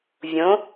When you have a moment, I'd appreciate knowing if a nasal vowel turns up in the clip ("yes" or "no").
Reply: yes